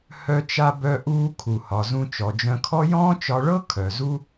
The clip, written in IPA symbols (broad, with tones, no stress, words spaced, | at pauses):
hœ˥t͡ʃa˥ bœ˥ʔuː˥ kʰu˩hɒ˩ zũ˧t͡ʃɔ˩d͡ʒœ̃˧kʰɔ˥ jɔ̃ː˥t͡ʃɒ˧ɭɤ˥ kʰœ˩zu˥